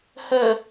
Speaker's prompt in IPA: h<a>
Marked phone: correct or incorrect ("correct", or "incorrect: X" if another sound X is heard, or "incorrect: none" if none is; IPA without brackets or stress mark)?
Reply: incorrect: ə